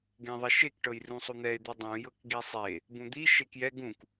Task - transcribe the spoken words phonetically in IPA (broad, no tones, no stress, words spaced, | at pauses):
ɡẽðˤɛʃek ʈɤjrũsˤun̪ɛe̯ d̪idˤũ jɤkɡisˤe | bũd̪i ʃekjɛ ɡũk